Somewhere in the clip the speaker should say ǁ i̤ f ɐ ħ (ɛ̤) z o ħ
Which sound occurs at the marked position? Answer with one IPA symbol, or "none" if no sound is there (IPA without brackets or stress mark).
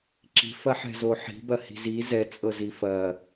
ɛ̤